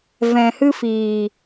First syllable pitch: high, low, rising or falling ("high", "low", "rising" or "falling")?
low